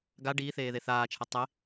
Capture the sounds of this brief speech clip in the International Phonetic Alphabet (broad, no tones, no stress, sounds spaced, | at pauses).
ɡ a ɖ iː θ eː ð e θ aː t͡ʃʰ ɛ tˤ e